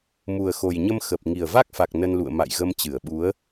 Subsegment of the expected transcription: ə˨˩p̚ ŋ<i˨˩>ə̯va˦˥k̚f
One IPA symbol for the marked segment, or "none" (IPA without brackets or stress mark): i˨˩